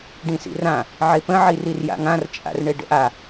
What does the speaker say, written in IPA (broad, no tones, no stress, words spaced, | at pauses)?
ɖĩsḭrã | ʕepə̃ ʕirirja̰ŋãr t͡ʃʼa̰rɳeɖə̰ʔa